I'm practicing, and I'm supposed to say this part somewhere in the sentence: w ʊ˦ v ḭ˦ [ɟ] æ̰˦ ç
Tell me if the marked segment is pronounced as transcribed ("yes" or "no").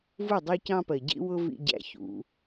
yes